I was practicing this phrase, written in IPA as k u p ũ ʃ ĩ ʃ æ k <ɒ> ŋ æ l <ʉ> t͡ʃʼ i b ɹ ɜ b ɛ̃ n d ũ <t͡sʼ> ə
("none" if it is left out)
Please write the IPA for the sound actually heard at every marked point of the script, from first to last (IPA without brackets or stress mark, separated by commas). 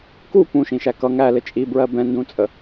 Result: ʌ, ɘ, t͡sʼ